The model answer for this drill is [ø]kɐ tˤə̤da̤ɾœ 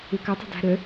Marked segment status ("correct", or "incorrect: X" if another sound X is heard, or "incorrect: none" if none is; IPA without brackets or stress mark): correct